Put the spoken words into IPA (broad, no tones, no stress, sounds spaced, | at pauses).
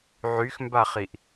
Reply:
ʕ y x m b a χ i ʔ